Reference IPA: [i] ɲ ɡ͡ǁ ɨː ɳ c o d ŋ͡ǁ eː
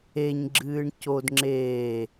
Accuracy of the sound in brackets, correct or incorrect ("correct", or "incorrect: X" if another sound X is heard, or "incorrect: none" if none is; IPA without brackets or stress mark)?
incorrect: e